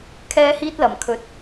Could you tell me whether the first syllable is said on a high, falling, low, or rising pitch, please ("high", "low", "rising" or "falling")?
high